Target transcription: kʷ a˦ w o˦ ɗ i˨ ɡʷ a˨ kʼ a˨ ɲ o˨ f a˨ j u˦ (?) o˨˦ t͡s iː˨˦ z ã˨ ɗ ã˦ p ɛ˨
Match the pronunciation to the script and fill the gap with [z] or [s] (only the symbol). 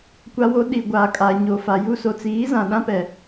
s